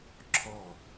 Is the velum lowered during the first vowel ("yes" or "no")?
no